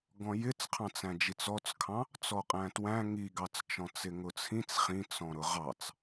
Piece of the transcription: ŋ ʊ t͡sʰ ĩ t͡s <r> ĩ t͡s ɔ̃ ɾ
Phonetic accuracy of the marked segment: incorrect: χ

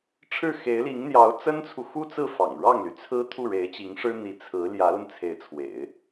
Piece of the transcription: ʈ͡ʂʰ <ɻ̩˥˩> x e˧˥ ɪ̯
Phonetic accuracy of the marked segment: correct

